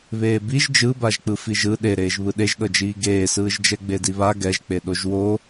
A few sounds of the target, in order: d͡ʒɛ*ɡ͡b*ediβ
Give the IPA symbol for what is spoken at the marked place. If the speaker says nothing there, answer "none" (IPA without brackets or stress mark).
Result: ɡ͡b